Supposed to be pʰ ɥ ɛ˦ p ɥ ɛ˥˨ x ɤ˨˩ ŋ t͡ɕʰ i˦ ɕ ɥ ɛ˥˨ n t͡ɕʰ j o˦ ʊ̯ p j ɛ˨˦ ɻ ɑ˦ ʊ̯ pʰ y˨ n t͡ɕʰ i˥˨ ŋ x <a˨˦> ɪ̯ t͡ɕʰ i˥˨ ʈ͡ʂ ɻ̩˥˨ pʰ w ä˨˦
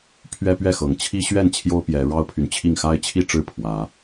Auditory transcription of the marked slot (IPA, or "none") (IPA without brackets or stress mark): a˦